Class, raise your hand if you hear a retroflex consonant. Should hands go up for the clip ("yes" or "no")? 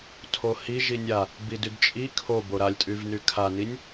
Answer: no